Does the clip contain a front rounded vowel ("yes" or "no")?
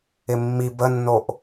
no